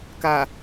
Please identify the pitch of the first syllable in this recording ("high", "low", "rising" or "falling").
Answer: low